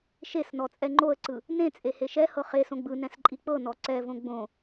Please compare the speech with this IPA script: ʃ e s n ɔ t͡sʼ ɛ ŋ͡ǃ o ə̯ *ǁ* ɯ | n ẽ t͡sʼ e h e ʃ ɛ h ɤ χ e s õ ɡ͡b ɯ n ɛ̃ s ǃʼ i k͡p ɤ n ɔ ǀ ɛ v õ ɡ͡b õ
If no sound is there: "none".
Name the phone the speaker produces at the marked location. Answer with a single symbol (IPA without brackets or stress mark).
ǀ